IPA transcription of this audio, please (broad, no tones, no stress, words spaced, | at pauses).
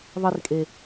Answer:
ðˤirkʼe